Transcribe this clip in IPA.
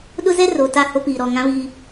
ɗ ʊ˦ z ɛ˦ r o˨ t a˦˨ h o˦ p iː˨ ɾ ɔ˨ ŋ ã˦ β iː˦

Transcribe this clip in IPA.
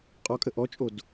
qʼ ɔ kʼ ə ʔ ɔ t͡ʃʼ o d

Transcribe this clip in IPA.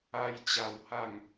a˦ j t͡ɕ a˧ w h a˥˧ ŋ

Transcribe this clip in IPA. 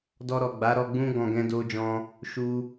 d ɔ˧ ɾ ɔ˨ ɡ͡b a˨˦ ɾ ɔ˧ ɡ͡b ũ˦ ɡ ɔ̃˧ ɡ ɛ̃˦ d o˦ d͡ʒ ɔ̃˦ | ʃ u˧

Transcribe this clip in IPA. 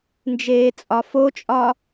n d͡ʒ eː t͡sʼ ɒ f o t͡ʃʼ ɒ

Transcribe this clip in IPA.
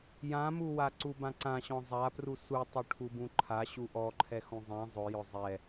j ã m u w a ǀ u b ã ǀ ã ɕ ɔ̃ zˤ a p r u s u tˤ u ʈʰ u b ũ ǃʰ a ɕ u ʔ ɔ ǃʰ ɛ x ũ zˤ ɛ̃ zˤ ʊ j ʊ zˤ ɛ

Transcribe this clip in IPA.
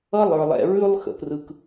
ʌ˦ lˠ ə˞˨ lˠ ɛ̰˨ ɹ ʉ˦ lˠ x ə̰˨ p r ɯ˨ k

